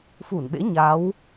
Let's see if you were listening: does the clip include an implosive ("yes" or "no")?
yes